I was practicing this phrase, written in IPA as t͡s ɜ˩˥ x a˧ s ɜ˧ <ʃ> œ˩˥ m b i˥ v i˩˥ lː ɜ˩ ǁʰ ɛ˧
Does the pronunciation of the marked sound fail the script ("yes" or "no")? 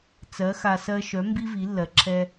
no